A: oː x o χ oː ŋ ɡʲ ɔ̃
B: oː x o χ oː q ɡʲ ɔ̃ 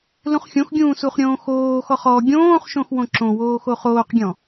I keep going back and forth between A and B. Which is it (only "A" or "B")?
B